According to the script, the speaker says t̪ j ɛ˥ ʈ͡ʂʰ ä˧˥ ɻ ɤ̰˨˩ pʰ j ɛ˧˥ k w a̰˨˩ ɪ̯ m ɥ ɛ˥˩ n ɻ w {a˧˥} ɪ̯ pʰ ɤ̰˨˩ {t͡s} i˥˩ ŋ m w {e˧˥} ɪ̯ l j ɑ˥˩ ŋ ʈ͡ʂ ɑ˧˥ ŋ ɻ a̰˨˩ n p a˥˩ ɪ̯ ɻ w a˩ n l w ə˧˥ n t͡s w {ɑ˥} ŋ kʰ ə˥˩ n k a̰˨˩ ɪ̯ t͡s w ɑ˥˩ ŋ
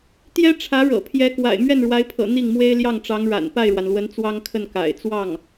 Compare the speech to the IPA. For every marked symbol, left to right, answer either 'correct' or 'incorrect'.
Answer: correct, incorrect, incorrect, correct

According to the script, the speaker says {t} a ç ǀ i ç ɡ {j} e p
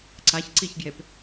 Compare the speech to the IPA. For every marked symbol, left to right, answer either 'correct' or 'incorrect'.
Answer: incorrect, correct

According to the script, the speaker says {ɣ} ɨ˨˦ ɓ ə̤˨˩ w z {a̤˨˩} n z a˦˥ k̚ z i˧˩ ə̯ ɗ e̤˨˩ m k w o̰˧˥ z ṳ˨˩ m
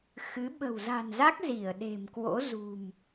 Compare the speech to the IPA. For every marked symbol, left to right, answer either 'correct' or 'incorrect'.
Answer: incorrect, correct

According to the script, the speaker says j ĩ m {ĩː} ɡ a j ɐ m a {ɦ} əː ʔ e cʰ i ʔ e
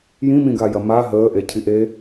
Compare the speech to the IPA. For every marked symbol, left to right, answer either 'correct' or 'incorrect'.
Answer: incorrect, correct

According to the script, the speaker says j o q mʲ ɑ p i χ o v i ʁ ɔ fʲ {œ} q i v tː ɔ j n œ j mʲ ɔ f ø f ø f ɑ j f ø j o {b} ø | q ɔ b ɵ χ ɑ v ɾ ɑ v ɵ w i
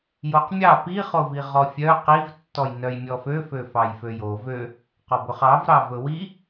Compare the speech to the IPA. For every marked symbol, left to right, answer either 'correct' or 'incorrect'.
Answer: correct, incorrect

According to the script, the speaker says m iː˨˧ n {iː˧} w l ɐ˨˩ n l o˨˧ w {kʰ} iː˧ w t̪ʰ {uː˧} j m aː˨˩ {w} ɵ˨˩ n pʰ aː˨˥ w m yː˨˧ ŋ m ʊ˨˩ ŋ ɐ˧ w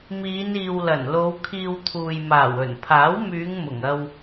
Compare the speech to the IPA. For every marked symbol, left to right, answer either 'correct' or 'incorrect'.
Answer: incorrect, correct, incorrect, correct

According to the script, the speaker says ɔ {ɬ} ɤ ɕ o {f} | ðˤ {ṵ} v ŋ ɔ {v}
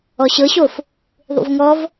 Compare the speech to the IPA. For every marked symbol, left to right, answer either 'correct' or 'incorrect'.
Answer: incorrect, correct, correct, correct

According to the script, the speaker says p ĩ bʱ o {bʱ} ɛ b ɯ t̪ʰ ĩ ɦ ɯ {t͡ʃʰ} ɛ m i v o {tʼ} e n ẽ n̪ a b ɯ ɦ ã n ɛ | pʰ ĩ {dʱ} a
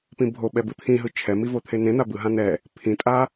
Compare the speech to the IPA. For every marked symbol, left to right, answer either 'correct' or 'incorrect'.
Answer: incorrect, correct, incorrect, incorrect

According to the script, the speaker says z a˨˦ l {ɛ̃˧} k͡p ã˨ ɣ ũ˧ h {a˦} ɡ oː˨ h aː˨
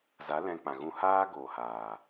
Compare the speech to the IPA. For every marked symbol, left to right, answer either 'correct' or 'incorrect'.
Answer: correct, incorrect

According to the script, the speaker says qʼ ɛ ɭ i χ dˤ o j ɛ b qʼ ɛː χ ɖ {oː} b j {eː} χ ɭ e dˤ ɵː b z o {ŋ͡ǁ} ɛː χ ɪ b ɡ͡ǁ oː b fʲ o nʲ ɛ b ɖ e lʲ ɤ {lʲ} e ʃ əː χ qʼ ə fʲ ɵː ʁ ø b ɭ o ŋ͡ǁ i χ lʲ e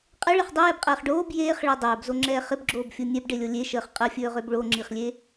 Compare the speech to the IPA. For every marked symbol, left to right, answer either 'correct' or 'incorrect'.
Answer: correct, correct, correct, correct

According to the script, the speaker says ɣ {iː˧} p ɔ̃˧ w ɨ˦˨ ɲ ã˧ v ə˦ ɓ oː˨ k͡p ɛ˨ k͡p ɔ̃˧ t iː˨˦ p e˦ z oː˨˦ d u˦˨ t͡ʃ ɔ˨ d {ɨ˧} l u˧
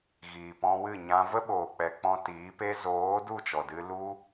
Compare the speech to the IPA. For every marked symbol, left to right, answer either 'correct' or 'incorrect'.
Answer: incorrect, correct

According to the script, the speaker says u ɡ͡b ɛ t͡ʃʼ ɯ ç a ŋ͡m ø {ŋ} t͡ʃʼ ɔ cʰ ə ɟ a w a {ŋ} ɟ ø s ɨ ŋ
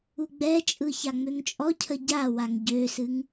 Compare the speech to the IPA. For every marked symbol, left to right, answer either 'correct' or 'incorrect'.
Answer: correct, correct

